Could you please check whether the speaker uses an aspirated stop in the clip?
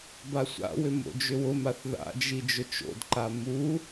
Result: no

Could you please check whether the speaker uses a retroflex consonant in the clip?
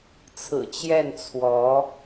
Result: no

